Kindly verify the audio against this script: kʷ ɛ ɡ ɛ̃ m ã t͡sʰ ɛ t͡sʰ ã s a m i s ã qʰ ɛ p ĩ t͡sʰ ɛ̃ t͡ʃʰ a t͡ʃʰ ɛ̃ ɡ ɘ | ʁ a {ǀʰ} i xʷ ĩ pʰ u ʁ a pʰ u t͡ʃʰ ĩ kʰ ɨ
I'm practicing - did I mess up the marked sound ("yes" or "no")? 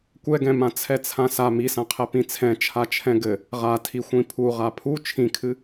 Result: yes